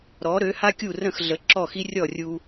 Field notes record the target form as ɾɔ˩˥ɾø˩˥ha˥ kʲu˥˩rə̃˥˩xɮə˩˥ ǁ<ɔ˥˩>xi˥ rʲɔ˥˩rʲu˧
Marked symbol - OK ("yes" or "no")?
yes